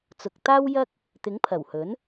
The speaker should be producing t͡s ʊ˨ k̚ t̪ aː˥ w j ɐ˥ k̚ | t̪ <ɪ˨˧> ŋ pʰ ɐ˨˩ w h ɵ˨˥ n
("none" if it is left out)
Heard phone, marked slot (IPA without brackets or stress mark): ɪ˨˥